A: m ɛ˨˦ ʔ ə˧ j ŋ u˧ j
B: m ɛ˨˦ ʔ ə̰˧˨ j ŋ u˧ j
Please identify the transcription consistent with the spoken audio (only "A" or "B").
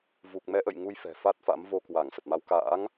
B